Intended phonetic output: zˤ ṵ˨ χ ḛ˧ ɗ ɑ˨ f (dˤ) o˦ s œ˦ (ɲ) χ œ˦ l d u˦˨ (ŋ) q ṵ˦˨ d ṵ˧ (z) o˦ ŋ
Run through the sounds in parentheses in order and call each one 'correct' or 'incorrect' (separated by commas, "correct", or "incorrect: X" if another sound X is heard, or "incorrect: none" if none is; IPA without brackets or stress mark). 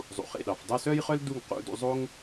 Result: correct, incorrect: j, correct, incorrect: zˤ